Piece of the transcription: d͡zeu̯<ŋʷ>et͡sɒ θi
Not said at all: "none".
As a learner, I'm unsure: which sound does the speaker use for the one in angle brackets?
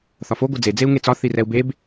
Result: ŋ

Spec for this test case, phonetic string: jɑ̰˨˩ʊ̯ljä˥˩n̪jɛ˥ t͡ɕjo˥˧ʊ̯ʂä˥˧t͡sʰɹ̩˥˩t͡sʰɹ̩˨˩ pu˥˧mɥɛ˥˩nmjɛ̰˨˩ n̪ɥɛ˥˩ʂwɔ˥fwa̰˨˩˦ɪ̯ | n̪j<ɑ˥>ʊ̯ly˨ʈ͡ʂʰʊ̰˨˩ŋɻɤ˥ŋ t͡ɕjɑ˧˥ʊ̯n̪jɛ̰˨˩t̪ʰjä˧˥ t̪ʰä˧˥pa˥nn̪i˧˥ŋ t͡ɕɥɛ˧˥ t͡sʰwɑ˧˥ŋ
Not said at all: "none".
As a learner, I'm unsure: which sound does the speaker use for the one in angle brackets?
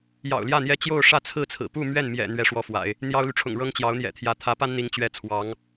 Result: ɑ˥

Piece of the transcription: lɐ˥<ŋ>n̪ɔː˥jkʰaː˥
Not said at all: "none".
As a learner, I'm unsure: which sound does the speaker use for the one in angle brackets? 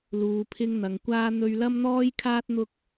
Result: m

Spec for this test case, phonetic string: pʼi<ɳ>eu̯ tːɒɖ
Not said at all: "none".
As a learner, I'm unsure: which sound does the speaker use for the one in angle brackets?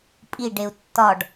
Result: ɖ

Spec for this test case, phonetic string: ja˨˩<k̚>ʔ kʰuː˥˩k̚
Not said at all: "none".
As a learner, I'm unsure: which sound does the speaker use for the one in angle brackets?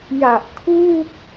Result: none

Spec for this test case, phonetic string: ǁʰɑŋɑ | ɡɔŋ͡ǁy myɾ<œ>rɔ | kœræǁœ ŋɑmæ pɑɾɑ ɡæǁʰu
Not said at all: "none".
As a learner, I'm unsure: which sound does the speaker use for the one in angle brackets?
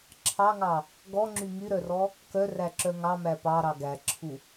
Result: œ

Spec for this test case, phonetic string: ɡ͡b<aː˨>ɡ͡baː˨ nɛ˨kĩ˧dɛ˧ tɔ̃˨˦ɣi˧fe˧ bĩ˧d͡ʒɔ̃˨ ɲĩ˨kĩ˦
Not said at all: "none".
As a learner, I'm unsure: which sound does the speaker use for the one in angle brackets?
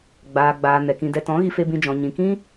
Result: aː˨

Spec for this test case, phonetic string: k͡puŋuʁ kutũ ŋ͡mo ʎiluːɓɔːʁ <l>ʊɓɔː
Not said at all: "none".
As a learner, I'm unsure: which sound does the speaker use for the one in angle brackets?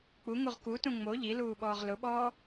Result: l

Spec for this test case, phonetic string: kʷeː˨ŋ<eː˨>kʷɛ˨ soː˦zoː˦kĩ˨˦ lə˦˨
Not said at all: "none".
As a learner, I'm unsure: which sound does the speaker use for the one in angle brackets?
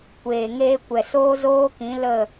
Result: eː˧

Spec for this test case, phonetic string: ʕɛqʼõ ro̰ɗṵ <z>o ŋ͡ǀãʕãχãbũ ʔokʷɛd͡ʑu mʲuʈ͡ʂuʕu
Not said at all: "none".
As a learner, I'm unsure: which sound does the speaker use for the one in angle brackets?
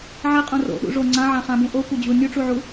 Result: ʐ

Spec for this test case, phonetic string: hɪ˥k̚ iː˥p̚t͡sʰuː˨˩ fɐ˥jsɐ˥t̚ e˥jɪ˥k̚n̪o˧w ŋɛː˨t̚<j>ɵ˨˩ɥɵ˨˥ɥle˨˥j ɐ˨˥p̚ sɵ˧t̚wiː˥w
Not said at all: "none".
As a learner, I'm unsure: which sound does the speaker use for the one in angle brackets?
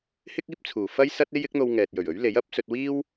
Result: j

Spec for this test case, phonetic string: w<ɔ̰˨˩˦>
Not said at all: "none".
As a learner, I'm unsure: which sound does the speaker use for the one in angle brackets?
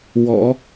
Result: ɔ̰˨˩˦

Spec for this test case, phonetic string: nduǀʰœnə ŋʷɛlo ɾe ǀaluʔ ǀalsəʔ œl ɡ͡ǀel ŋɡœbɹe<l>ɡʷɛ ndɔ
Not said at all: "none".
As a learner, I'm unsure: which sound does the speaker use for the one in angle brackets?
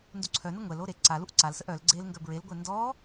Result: l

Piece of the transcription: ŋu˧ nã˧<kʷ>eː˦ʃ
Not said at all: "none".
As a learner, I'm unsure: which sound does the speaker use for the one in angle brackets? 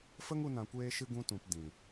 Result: kʷ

